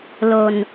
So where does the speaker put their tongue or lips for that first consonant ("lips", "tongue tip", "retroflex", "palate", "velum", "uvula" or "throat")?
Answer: tongue tip